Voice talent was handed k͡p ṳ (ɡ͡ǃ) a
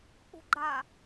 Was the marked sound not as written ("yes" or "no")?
no